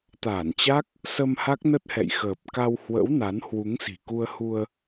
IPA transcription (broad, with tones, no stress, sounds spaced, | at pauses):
t̪ aː˧˩ n t͡ɕ a˦˥ k̚ | s ə˧ m h a˦˥ k̚ n ə˦˥ t̚ h ɛ̰˧˨ j x əː˨˩ p̚ k a˧ w h w ə̰˧˥ w n a˨˦ n h w u˨˦ ŋ s i̤˨˩ k u˧ ə̯ h u˧ ə̯